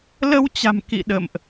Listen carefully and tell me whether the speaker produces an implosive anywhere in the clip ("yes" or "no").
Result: yes